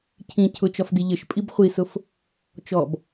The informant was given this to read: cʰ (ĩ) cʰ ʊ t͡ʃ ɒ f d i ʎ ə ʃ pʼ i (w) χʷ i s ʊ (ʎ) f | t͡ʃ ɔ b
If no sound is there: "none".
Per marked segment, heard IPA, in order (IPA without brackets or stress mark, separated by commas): ĩ, b, none